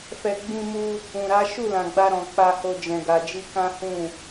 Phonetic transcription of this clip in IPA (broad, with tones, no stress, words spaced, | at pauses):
fɛ˧ ɡ͡bĩ˧mu˧ | ũ˨ɾa˨˦ ʃu˦˨lã˨ɡ͡ba˧ɾɔ̃˨ k͡pa˧ho˧ d͡ʒɛ̃˨ɡa˨d͡ʒi˧ kã˦hũ˦˨